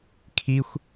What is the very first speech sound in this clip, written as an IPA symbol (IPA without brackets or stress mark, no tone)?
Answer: kʰ